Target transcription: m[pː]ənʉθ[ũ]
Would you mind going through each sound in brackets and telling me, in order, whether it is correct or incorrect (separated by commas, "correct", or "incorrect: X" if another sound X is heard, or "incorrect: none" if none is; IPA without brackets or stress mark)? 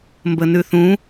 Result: incorrect: b, correct